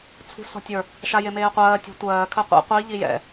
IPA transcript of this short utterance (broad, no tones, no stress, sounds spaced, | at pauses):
t͡sʰ ṳ s ɔ̤ tʲ ə˞ | ʃ a j e m eː qʷ ɜː tʲ ṳ tʷ ɜː kʰ ɜ qʷ ḛ qʷ i ʎ i j ɛ̰